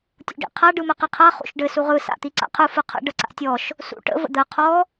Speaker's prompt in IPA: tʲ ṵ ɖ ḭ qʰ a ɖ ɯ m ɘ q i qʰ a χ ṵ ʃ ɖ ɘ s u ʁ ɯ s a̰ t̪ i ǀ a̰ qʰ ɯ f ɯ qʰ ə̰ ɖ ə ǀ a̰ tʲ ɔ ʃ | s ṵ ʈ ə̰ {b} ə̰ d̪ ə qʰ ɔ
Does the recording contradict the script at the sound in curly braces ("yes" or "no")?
yes